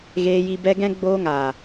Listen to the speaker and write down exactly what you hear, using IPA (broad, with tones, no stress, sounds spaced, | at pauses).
ɣ eː˧ j i˧ b ɛ˦ ɡ ɛ̃˦ ɡ͡b oː˧ ŋ aː˨